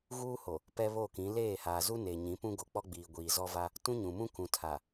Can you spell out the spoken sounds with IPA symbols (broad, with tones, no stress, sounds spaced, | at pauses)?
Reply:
ɣ uː˦ h o˨ | p ɛ˦ β o˦˨ k ĩ˨˦ l eː˦˨ h aː˨ z u˦ n eː˨ ɲ ĩ˨˦ p ũ˦ ɡ o˨ k͡p ɔ˦ ɡ͡b iː˨ ɡʷ iː˨ z ɔ˦ v a˦ | t ũ˦ ɲ ũ˨ m ũ˦ k ũ˨ tʰ a˨